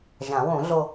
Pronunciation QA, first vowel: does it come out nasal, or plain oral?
nasal